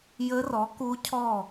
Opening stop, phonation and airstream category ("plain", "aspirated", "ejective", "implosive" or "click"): plain